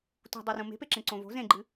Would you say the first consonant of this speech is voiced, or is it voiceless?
voiceless